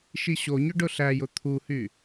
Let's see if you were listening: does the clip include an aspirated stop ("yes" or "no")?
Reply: yes